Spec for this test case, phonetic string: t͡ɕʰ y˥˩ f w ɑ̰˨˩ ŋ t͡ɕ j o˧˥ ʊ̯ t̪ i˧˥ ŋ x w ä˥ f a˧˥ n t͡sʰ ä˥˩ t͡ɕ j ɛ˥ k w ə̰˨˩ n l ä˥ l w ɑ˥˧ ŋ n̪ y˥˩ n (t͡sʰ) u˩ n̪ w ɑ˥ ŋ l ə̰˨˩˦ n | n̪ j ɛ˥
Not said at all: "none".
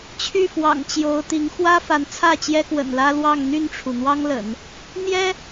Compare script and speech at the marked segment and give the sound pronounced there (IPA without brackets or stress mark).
ʈ͡ʂʰ